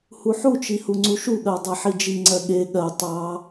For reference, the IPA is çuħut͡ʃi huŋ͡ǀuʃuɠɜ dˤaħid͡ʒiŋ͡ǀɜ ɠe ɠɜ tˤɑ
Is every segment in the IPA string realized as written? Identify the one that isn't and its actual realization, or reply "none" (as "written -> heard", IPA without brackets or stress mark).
ç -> h